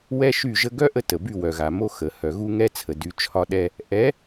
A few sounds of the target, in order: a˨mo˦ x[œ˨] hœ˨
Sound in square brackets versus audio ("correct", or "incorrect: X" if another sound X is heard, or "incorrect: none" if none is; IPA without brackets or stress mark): incorrect: ə˨